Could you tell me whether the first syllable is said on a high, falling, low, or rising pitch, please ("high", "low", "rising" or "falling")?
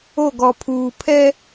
falling